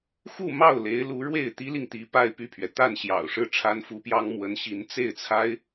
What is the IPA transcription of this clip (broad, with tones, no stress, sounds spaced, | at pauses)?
x u˥˧ m ɑ˥˩ ʊ̯ l e˧˥ ɪ̯ l u˧˥ ɻ w e˥˩ ɪ̯ t̪ i˥ l i˨ ŋ t̪ i˧˥ p a˥˧ ɪ̯ p y˥˩ pʰ ɥ ɛ˩ t̪ a˥˩ n ɕ j ɑ̰˨˩ ʊ̯ ʂ ɻ̩˥˩ ʈ͡ʂʰ a˥ n f u˧˥ p j ɑ˥ ŋ m w ə˧˥ n ɕ i˧˥ n t͡s e˥˩ ɪ̯ t͡sʰ a˥ ɪ̯